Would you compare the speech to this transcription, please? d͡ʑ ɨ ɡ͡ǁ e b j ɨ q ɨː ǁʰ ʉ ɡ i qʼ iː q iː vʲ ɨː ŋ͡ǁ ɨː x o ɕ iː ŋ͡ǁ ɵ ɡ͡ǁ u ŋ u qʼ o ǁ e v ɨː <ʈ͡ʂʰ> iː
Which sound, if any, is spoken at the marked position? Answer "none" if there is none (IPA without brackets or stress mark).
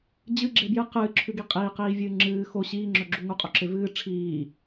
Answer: ʈ͡ʂʰ